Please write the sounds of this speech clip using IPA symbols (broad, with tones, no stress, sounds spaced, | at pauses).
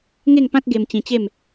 ŋ e˥˧ ŋ p ã˦ t̚ ɡ e˧ m t͡ɕ ĩ˧ t͡ɕ e˥˧ m